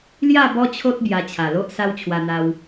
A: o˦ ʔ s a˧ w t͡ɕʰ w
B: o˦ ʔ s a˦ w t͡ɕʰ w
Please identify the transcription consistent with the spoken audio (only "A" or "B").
B